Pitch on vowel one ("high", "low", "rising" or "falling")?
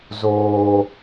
low